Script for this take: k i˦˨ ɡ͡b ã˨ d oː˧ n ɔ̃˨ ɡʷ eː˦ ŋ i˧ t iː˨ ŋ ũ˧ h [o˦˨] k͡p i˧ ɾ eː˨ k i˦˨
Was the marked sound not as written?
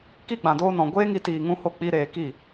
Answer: no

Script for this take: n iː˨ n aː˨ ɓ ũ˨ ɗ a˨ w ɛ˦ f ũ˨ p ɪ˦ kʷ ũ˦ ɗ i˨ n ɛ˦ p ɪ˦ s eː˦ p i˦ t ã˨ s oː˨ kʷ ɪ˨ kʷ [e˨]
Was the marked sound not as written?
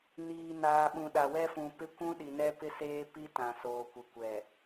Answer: yes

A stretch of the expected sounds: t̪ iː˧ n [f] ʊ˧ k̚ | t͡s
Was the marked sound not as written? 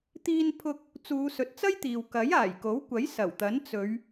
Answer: yes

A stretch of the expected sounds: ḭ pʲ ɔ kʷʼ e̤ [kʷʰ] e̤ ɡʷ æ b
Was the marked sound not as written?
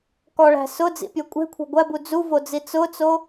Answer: no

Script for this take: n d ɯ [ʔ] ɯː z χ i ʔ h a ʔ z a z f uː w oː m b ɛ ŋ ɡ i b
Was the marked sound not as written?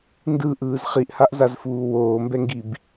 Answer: no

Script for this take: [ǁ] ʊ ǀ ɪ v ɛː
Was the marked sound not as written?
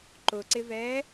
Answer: yes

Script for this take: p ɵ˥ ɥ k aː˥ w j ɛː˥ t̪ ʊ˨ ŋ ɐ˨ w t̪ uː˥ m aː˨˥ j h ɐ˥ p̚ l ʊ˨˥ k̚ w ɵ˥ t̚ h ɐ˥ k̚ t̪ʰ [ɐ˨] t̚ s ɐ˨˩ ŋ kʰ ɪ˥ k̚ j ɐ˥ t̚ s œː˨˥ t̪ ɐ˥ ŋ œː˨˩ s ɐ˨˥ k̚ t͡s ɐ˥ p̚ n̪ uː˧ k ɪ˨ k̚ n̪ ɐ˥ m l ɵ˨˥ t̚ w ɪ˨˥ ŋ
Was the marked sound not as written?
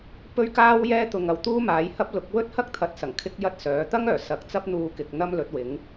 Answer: yes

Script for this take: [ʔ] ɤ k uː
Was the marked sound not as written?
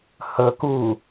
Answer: yes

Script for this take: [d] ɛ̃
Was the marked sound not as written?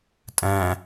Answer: yes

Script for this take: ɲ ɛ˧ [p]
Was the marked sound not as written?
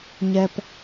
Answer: no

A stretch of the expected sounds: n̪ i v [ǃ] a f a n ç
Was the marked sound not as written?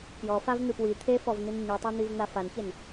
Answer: yes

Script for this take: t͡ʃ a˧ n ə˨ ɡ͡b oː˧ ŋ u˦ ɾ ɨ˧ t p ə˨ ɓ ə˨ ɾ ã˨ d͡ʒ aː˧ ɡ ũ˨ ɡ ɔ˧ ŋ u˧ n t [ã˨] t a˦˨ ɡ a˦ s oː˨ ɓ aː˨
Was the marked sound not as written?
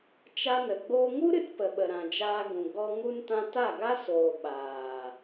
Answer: yes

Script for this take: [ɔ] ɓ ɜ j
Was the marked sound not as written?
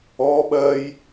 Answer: no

